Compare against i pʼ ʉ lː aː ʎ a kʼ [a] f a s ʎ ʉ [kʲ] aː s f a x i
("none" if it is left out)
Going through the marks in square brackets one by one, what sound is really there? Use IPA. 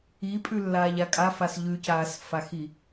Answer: a, c

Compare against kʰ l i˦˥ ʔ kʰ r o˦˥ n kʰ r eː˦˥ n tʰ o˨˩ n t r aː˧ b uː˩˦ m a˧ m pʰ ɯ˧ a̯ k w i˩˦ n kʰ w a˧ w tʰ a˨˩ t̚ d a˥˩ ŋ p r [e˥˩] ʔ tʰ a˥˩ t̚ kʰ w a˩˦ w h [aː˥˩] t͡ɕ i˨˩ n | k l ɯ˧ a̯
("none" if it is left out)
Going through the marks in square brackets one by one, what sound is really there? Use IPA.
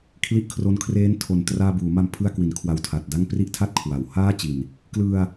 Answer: i˥˩, aː˥˩

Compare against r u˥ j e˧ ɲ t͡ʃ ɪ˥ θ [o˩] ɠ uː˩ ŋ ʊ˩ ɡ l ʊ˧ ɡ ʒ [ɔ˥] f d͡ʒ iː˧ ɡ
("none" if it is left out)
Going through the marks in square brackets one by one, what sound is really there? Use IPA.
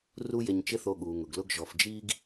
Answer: o˧, ɔ˩

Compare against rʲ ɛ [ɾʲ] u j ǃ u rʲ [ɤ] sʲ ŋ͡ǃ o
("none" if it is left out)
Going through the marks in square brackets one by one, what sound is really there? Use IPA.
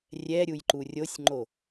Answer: ɾʲ, o

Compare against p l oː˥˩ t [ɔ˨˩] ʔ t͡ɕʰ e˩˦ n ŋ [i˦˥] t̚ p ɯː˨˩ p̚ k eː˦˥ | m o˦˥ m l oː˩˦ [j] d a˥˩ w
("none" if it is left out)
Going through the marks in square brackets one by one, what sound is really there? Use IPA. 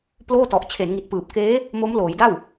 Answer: ɔ˨˩, i˨˩, j

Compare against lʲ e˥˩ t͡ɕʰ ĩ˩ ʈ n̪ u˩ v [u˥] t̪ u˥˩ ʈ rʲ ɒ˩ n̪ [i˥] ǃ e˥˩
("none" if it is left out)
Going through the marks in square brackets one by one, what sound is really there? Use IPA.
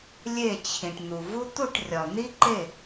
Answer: u˥, i˥

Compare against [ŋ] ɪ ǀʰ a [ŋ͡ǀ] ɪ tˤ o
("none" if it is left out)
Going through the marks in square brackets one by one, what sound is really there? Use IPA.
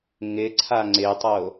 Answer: ŋ, ŋ͡ǀ

